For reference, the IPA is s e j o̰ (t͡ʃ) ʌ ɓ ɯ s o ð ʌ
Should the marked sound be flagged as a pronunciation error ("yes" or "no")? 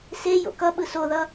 yes